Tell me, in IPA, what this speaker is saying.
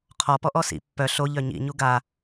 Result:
qʰɔpɔ ʔɔsḭ pːœ ɬoʎœ ɲḭɲu ɡa

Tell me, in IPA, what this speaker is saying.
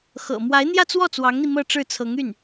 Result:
xɤ̰˨˩ mwa˧˥ɪ̯ n̪jä˥˧t͡swɔ˥˩ t͡swɑ˧˥ŋn̪i˧ mɤ˥˧ʈ͡ʂɻ̩˥˩t͡sʰɤ˧˥ŋ y˥˩n

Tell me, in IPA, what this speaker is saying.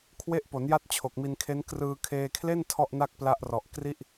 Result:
kʰwe˦˥ʔpo˩˦nja˦˥t̚ t͡ɕʰo˨˩k̚mi˧nkʰe˦˥n krɯː˧kʰeː˧kʰle˥˩n tʰɔ˥˩ʔna˥˩k̚pla˦˥ʔrɔ˨˩ʔ kri˥˩ʔ

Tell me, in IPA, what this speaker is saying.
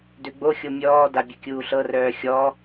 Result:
døɡ͡boxʲo mʲɔːda bʲɘkʲuːɬɤrœː xʲɔ

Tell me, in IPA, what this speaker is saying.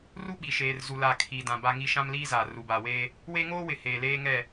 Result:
ru˦ɓi˨ ʃeː˨rzu˨la˨ kʰi˨ dã˨ ba˦ŋi˦ ʃã˦mliː˦zaː˨ ru˨ba˨weː˦ | we˦ ŋoː˦wɪ˨ heː˨leː˦ŋɛ˦˨

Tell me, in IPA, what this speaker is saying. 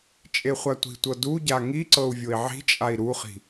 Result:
t͡ʃʼeχʷatʷi̤tʷɤ duɟa ŋiǀɤu̯ vʲoi̯ʕi̤t͡ʃʼai̯ ɾuχi̤

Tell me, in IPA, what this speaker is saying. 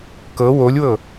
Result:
kɤ wolʲwɤ

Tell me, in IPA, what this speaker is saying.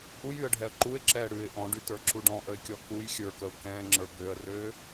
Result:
ʔujyə̯ɖʱɛə̯ ǃuɪ̯ǁɛː ɽʉɪ̯ ʔɔ̃ɖytə˞ǁu ɖɔ̃ʔəɪ̯kʲɔ kuj xʲə˞kəʊ̯ kɛ̃ːŋ͡ǁə˞ bøə̯røː

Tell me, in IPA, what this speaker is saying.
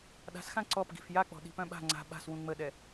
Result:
ɗa̤sxã ǀɔp ɡi̤fjak͡pɔ̤ ɗi̤pœ̃ɓa̤ ŋ͡ǀa̤ ɓa̤s wũŋ͡məɗɛ

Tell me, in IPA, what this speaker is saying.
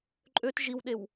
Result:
ǃʼøt ʒiwɗew

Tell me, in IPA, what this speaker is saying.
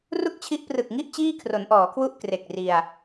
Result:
ru˥˩k̚t͡ɕʰi˦˥ʔprɯ˨˩k̚ŋi˥˩ʔ t͡ɕiː˥˩kʰro˩˦nʔɔː˩˦kʰwu˥˩ʔ kre˨˩k̚ri˧a̯

